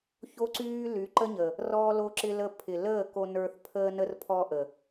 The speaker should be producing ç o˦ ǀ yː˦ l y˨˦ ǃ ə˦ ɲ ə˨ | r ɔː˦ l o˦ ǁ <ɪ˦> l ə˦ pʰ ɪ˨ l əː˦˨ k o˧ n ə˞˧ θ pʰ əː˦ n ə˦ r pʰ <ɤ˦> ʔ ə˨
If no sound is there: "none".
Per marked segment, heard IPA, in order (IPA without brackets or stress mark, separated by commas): ɪ˦, ɔ˦